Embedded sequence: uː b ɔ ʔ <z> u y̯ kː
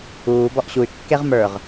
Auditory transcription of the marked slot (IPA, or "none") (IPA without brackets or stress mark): ɕ